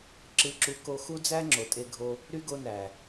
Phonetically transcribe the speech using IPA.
ǁ ɯ˧ ǁ u˧ k o˧ x u˦ d͡z æ˦ ŋ͡ǁ o˨ tʼ e˧ ɡʱ o˧ | ɾ y˦ ɡ o˧ n æ˨

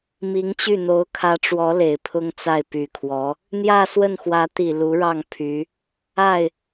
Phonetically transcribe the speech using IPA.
m i˧˥ ŋ t͡ɕ y˥˩ n̪ o˧˥ ʊ̯ kʰ ä˧˥ ʈ͡ʂ w ɔ˧˥ l e˨˩ ɪ̯ pʰ ʊ˥ ŋ t͡s a˥˩ ɪ̯ p y˨˩ kʰ w ɔ˧˥ | n̪ j ä˥˧ s w ə˥˩ n x w ä˧˥ t̪ i˨˩ l u˧˥ ɻ ɑ˥˩ ŋ pʰ y˧˥ | a˥˩ ɪ̯

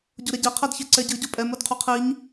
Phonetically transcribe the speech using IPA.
ɟ o ɾ ɛ ɟ e qʰ ɛ d ç ɛ ǀ ɛ ɟ ɯ ɟ o pʼ ɛ m o d qʰ o qʰ i ɲ

